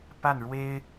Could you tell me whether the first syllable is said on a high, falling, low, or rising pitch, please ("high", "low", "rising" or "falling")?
falling